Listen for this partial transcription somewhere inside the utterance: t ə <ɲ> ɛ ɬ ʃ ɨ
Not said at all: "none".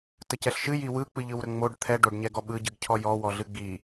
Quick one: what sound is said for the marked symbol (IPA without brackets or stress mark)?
c